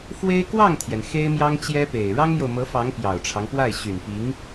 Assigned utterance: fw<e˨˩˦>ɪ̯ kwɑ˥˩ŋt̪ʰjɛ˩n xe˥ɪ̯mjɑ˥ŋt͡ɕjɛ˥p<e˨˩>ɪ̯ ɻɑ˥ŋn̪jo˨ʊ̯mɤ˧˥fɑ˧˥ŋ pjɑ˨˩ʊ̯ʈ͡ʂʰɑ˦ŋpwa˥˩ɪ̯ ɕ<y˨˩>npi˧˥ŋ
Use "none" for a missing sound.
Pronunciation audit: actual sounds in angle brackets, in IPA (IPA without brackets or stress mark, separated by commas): e˥, e˨˩, y˨˩